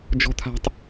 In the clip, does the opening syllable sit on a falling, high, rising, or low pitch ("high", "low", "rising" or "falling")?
high